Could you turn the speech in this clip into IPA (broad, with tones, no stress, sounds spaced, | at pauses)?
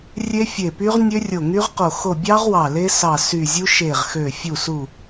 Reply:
rʲ e˦˥ fʲ e˧˩ p y˦˥ ʁ nʲ ø˦˥ rʲ o˧˩ ŋ y˦˥ ʁ q o˧˩ x o˧˩ bʲ ɑ˦˥ ʁ w ɑ˧˩ l e˦˥ s ɑ˧˩ s y˧˩ zʲ u˦˥ ʃ e˧˩ ʁ x ø˧˩ fʲ u˧˩ s u˧˩